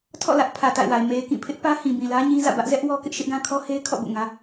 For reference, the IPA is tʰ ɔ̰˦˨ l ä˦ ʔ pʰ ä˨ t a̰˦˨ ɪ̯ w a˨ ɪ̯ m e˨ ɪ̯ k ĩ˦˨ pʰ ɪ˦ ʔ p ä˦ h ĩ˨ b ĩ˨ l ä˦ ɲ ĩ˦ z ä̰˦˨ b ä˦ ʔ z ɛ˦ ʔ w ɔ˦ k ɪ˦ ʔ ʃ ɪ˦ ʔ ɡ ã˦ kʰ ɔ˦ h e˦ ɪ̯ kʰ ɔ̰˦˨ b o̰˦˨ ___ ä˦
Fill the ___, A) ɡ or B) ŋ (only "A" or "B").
B